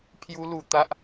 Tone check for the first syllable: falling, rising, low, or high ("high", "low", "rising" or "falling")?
high